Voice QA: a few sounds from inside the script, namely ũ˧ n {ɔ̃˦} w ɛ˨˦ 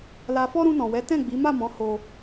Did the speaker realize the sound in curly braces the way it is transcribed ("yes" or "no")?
no